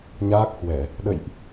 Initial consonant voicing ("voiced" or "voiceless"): voiced